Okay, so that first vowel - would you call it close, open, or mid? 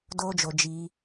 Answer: mid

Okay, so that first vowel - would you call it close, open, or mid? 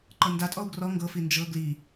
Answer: mid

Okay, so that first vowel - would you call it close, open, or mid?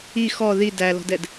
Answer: close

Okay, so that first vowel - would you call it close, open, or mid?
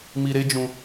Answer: close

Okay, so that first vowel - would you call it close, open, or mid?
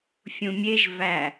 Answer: close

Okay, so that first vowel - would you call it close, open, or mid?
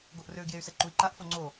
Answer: mid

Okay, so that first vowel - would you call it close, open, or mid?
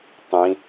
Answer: close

